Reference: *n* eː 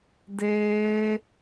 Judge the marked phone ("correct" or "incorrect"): incorrect